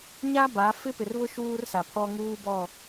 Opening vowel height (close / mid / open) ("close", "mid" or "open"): open